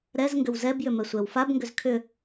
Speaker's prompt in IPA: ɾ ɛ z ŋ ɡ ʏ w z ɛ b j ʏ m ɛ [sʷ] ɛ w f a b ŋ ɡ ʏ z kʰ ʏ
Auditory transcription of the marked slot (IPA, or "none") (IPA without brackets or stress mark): sʷ